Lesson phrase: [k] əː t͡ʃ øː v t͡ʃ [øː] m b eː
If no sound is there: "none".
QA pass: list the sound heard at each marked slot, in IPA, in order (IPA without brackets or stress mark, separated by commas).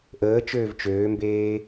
ʔ, øː